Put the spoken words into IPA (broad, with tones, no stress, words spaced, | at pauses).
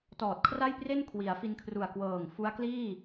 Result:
tɔː˨˩t̚kʰra˥˩jpre˥˩n kʰwi˩˦a̯fi˧nkʰru˨˩a̯ kwɤː˨˩ŋ fu˦˥a̯kliː˥˩